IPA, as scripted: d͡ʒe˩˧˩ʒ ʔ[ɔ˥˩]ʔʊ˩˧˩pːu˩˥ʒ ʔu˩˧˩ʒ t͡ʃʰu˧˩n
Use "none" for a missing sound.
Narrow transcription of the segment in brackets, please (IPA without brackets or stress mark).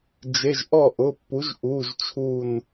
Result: ɔ˥˩